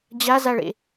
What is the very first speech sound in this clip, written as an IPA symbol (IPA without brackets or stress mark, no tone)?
d͡ʑ